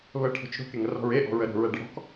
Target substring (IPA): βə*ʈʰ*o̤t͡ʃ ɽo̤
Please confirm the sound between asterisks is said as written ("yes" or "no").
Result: yes